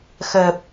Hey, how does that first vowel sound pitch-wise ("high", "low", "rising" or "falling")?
low